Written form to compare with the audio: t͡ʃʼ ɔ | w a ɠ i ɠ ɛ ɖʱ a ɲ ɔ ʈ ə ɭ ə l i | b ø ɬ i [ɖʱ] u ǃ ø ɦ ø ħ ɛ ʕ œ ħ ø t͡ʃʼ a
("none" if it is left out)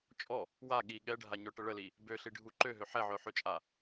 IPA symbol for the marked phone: ɖʱ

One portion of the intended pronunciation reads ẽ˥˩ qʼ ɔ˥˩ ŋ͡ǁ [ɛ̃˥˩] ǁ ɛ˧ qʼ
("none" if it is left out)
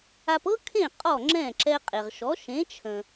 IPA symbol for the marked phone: ɛ̃˥˩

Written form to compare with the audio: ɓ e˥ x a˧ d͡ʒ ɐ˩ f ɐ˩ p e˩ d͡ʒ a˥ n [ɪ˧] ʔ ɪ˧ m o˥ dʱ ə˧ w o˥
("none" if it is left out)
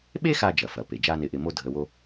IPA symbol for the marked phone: ɪ˧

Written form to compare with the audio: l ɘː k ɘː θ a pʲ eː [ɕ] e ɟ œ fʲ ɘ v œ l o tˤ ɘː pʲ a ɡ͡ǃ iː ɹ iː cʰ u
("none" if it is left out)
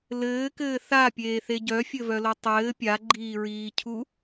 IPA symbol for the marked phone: θ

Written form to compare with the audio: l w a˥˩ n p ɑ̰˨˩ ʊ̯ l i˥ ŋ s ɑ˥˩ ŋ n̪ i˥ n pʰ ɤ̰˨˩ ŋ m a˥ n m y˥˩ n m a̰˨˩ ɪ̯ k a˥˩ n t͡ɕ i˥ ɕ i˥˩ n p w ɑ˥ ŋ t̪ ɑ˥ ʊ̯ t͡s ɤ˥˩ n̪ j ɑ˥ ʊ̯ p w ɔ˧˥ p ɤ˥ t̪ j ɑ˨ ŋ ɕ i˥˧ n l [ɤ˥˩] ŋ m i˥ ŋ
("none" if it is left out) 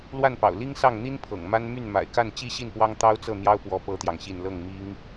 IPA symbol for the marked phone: ɤ˥˩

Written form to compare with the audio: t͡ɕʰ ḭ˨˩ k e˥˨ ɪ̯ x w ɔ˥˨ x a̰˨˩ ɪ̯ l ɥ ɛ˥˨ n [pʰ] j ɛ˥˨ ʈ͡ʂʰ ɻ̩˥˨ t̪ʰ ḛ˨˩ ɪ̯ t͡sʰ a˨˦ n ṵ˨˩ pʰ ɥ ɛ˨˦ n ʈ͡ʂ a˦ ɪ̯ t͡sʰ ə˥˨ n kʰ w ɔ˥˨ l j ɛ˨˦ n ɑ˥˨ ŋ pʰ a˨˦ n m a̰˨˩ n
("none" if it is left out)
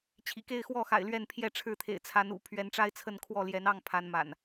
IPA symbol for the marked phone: pʰ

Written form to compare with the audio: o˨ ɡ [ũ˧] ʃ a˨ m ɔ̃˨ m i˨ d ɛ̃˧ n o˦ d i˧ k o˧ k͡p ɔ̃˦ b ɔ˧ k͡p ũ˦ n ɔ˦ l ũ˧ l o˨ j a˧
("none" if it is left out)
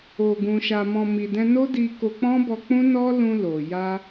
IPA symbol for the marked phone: ũ˨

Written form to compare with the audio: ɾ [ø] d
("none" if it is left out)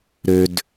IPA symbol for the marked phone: ø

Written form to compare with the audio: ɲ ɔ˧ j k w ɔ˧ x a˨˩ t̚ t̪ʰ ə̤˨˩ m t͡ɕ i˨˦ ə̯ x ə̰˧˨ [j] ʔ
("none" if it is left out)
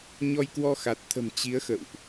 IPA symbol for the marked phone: w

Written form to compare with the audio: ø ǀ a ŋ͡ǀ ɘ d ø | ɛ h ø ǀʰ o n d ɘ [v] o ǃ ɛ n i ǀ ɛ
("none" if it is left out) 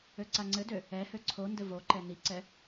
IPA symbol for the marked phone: v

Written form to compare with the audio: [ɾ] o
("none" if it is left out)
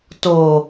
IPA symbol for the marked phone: t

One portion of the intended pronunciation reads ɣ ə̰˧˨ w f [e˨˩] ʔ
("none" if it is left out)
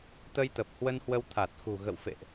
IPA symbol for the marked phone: ḛ˧˨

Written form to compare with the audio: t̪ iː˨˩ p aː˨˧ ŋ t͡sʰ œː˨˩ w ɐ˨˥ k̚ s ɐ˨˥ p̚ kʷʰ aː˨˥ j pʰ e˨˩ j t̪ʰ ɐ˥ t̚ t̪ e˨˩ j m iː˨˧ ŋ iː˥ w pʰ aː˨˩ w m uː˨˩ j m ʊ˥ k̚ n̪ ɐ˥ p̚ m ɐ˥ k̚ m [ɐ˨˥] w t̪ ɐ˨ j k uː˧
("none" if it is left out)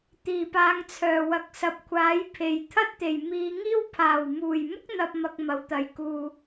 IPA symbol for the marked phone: ɐ˨˥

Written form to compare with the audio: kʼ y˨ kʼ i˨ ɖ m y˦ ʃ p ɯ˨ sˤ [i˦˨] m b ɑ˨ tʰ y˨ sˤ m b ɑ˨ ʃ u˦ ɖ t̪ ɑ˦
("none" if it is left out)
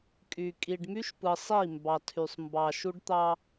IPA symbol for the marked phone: i˦˨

